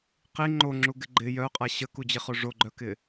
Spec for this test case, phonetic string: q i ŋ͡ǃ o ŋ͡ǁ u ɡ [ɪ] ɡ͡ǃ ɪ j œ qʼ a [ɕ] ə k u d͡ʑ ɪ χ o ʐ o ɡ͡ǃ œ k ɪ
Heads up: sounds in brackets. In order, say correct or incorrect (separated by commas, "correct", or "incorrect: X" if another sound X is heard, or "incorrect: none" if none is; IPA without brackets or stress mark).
correct, correct